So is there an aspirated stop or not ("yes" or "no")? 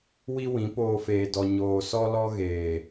no